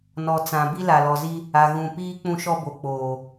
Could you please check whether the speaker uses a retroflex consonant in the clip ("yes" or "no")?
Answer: no